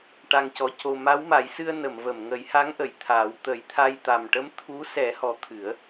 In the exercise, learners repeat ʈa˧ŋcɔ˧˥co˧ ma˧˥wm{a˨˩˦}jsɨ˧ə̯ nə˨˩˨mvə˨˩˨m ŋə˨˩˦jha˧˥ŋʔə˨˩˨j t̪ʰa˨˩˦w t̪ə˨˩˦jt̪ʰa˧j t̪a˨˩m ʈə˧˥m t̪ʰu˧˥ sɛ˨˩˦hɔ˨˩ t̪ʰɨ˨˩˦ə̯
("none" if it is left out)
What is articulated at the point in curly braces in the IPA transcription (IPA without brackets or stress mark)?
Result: a˨˩˦